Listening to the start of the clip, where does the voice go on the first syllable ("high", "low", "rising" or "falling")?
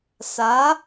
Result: rising